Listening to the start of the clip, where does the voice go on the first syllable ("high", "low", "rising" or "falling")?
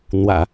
low